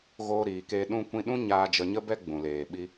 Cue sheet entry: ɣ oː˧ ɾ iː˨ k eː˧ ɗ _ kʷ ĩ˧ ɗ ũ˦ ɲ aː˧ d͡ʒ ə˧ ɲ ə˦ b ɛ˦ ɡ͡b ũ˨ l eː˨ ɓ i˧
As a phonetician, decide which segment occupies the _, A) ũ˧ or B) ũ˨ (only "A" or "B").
A